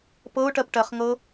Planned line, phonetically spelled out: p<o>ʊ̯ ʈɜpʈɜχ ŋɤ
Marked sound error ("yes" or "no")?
yes